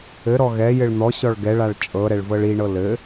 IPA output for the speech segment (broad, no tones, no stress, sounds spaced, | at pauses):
ɘ ɾ ɔ ɣ ɛ j ɘ ɭ n̪ ɔ ɕ ɔ ɭ ɡ ɛ ɭ a ɭ t͡ʃʼ ɤ ɾ ɛ ɭ v ɤ ɭ i ɳ ɤ l ɘ